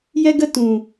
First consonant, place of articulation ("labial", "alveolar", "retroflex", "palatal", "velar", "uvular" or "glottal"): palatal